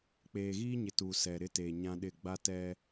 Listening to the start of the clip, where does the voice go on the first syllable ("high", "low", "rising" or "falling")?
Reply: low